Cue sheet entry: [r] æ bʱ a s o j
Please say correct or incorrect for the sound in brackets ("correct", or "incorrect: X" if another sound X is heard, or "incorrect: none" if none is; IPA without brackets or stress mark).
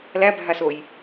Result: incorrect: l